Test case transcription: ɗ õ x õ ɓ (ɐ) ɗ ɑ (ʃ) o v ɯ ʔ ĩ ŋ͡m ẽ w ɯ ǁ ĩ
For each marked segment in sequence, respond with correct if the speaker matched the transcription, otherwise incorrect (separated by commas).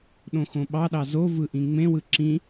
incorrect, incorrect